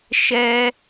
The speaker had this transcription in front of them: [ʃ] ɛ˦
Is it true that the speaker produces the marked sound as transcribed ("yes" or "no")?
yes